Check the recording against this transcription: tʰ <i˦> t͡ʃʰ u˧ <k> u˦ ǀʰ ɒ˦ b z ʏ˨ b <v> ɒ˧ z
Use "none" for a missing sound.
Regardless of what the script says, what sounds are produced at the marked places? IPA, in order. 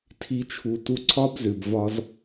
i˦, t, v

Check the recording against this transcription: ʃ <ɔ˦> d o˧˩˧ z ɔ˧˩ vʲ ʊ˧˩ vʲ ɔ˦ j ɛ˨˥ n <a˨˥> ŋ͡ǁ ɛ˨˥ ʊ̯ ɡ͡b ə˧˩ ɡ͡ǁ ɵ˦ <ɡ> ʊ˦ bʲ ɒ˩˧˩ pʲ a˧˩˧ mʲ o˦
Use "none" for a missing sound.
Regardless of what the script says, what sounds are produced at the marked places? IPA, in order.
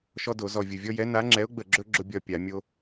ɔ˦, a˨˥, ɡ͡ǁ

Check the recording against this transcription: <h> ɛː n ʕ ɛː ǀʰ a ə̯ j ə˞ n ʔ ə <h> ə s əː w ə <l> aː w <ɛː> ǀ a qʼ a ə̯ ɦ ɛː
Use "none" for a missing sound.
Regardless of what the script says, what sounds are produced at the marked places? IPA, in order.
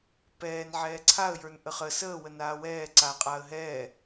p, χ, n, ɛː

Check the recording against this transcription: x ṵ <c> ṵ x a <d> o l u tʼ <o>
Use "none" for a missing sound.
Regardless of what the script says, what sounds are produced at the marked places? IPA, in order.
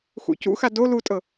c, d, ɤ

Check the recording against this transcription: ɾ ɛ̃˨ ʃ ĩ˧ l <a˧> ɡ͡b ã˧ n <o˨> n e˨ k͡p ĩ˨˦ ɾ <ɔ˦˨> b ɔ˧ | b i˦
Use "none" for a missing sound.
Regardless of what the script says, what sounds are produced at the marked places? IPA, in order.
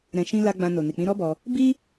a˧, o˨, ɔ˦

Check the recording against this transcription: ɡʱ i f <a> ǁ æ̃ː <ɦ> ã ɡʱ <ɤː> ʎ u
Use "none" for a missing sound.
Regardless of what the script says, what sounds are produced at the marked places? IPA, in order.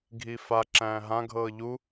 a, ɦ, ɤː

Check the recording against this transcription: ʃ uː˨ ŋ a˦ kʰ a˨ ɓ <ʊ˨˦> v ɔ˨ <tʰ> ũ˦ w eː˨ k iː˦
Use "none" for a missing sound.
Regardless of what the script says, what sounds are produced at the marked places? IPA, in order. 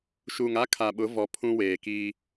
ʊ˨˦, pʰ

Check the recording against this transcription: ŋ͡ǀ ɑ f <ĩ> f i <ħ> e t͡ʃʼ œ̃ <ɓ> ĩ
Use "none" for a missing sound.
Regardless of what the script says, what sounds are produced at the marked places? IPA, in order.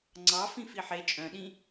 ĩ, ħ, ɗ

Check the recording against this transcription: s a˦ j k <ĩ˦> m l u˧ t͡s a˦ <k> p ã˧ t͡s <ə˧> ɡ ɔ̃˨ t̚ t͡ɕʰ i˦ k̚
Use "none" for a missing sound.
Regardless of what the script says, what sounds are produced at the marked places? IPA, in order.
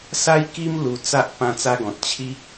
i˦, ʔ, a˧

